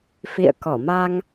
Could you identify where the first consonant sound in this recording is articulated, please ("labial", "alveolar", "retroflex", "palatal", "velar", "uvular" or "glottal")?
labial